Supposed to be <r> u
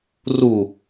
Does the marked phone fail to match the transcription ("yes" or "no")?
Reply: no